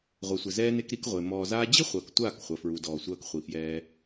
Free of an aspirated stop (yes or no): yes